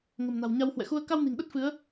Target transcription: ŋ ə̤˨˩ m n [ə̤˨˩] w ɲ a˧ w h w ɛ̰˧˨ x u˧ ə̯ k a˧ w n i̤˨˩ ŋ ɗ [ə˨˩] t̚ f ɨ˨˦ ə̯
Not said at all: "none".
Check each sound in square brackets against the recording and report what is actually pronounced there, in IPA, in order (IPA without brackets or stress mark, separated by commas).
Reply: a̤˨˩, ə˦˥